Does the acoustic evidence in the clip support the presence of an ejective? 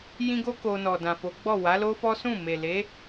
no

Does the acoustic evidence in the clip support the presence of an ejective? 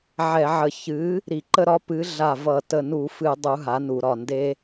no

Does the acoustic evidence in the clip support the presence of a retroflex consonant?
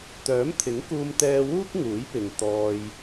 no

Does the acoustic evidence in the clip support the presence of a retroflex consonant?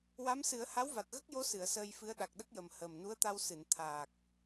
no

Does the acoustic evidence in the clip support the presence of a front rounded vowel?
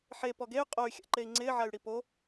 yes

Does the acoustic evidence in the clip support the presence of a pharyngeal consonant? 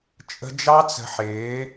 yes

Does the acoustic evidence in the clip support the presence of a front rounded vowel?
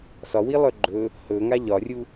yes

